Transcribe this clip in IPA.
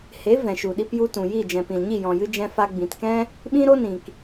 he˨˦ vɛ̃˨ʃu˨ɗi˧p ju˧tũ˨ji˦˨ d͡ʒɛ̃˨pĩ˨lɲi˦˨ jɔ̃˨jɨ˧d͡ʒɛ̃˧ fa˧ɡ͡bĩ˨tkɛ̃˦ | ɓĩ˦ɾo˦nĩ˨k

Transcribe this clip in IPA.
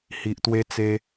hi˨ʔt̪we˧ t͡se˧

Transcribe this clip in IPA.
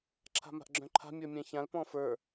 ǁʰa̤ma̤ʔɡ͡ǁœ̃ǃʰa̤ mʲə˞mʲɛ̃çãl pɔ̃fə˞

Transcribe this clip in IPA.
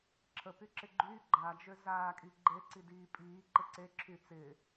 ǁʰə pyǁɪɡ͡ǃy ɡ͡ǃad͡ʒø zaːkʼi ɡ͡ǃe ǀidiːpʼiːǃɪ ǀeǁʰy t͡sɪ

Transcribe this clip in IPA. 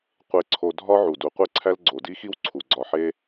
qʷe˨ ǀʰo˨ dʱɒ˦ʕu˩ du˩qʷe˦ǀʰæ˦l ɡ͡ǀo˩di˦xi˦w ǀʰu˩ɡ͡ǀɒ˨ħe˦

